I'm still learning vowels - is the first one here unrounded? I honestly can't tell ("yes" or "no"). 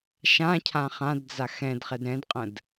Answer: yes